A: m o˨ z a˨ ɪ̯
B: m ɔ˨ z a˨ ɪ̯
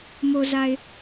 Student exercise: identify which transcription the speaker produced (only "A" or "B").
A